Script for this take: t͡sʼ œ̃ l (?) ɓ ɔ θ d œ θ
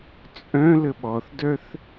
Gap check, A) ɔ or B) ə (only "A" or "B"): B